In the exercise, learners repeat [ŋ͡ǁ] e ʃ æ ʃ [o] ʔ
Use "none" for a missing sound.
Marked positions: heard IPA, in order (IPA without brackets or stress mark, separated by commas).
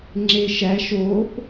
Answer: ŋ͡ǁ, o